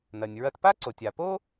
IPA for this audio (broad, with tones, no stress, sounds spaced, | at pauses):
n ɐ˩ nʲ ɹ ɐ˧ t p a˥ ǀ o˩ tʲ a˩ p o˥